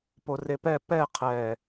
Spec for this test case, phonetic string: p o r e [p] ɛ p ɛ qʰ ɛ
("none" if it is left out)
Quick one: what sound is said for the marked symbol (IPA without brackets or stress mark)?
p